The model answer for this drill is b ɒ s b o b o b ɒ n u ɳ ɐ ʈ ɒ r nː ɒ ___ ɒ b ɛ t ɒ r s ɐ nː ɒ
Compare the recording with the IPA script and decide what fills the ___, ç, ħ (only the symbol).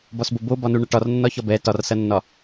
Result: ç